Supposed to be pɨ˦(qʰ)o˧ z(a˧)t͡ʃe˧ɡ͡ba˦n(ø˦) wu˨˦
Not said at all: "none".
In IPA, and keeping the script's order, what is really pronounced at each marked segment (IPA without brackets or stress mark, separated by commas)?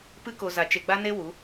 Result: k, a˧, e˦